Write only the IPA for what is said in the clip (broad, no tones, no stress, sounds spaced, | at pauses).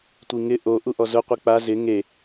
tʷ i ŋ ɪ ʔ o ʔ u ʔ ɔ z ʊ qʷ i k͡p a z ɪ ŋ e